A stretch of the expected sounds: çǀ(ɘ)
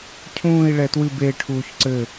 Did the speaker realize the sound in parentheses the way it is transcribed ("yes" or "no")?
yes